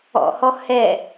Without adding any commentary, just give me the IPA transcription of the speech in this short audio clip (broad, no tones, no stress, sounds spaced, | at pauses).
ɔ̰ h ɔ h ɛ